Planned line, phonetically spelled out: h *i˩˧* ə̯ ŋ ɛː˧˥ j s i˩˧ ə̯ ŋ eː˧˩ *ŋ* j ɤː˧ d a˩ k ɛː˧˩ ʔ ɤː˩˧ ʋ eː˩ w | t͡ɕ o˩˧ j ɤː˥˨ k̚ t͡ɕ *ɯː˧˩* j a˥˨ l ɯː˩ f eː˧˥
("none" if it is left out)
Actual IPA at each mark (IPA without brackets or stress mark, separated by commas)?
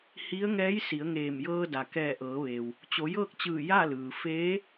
i˧˥, m, ɯː˧˩